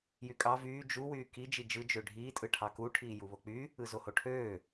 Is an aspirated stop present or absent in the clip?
present